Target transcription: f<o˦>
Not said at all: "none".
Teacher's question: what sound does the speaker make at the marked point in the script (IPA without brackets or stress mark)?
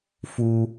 u˦